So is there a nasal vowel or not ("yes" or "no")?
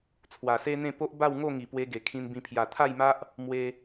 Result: yes